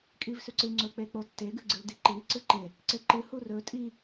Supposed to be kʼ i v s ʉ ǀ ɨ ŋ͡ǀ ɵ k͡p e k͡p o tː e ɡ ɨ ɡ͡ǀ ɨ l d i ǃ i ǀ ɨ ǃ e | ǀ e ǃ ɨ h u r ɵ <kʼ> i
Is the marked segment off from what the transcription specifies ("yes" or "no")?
yes